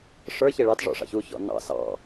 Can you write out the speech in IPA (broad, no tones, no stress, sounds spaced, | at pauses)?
ʂ ə˞ ç e ɭ ɑ t ʐ ɔ̰ ʂ ɑ̰ ç u ç ɔ̰ n ɑ̰ s ɑ̰